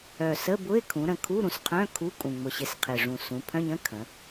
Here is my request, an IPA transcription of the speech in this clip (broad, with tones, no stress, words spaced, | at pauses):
œ˨˩sə˧˥˧bʊ˧˥˧ɪ̯ kʰũ˩˧ɾə̃˨˩ kʰu˧˥˧ɾũ˨˩sqʰœ̃˧˥˧ kʰu˧˥˧kʼũ˨˩ ŋ͡mʊ˨˩ɕɪ˨˩s qʰɪ˨˩ʐũ˨˩ sũ˩˧pʰœ̃˧˥˧ɲə̃˧˥˧ kʰə̃˩˧